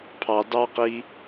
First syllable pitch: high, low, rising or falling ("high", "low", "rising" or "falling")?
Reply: low